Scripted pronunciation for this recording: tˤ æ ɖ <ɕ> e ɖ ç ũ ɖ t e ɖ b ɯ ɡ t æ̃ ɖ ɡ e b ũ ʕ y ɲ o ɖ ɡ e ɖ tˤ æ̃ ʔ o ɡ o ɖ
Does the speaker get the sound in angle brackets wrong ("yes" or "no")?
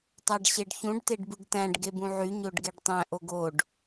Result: no